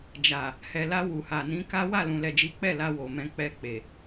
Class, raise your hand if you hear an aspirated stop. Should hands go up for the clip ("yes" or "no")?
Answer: no